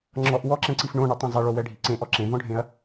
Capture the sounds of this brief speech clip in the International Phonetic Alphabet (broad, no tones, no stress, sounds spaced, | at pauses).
ŋ͡ǁ ɔ ʔ w ɔ ǁ ɛ̃ ǀ i f ɳ õ ɳ œ tˤ ɛ̃ zˤ ɛ ɭ o w ɛ ɖʱ i ǀ ẽ ʔ ɔ ǁ ẽ v ɔ̃ ɖʱ ẽ ɐ̯